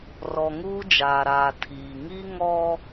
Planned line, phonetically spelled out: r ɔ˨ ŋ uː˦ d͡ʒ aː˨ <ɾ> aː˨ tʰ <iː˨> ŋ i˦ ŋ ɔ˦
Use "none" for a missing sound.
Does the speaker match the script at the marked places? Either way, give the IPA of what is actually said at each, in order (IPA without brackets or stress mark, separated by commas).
ɾ, iː˨